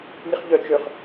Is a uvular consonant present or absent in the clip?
present